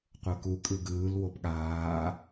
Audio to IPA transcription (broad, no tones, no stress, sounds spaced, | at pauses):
qʷ ɤ k u kʼ ɯ ɡ ɯː l w o p ɠ aː